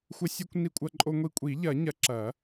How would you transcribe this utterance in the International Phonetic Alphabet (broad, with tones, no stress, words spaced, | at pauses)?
xʷɘ˧sʲu˧kʷ ni˧kʷʼɐ˧ǃʼo˧ŋʷi˧ kʷʼi˨˩˦ʎɐ˨˩˦ ɲɐ˨˩˦ǁɐ˨˩˦